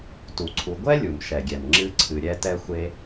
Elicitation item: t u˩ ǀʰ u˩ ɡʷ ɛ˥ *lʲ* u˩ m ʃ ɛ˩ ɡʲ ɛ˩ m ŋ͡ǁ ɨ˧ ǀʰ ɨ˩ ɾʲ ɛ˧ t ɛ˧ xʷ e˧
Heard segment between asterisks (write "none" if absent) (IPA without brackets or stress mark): lʲ